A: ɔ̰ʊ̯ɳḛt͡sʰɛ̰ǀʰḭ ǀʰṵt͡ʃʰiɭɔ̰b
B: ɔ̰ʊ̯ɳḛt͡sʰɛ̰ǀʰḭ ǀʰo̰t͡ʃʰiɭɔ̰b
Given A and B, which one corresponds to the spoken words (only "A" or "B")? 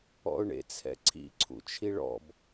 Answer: A